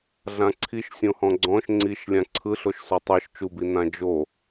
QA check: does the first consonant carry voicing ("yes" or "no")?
yes